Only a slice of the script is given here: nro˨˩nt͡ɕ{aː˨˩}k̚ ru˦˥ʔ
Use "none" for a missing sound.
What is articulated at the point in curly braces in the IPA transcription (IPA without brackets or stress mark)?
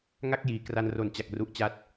a˨˩